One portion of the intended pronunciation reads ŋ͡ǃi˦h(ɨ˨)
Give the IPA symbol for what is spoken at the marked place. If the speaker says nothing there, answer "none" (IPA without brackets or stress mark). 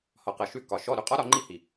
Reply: i˨